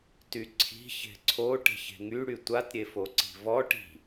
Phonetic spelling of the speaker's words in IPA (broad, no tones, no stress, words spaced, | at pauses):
tyǀʰi̤ çe̤ǀʰo ʈe̤çe̤ŋy ɽytʷat ɾʲefoǀi̤vɔ ʈi̤